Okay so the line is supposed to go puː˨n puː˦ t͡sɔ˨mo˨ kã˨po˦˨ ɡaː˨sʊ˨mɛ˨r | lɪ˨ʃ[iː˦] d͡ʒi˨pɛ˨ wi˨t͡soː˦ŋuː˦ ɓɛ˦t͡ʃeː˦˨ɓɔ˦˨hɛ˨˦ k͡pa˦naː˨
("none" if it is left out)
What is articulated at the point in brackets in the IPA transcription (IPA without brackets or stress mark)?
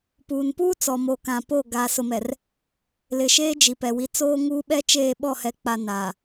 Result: eː˦